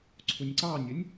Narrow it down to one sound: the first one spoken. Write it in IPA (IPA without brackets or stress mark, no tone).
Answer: ǀʰ